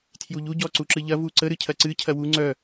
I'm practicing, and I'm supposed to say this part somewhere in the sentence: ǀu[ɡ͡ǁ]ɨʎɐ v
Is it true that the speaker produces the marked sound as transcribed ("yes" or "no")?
no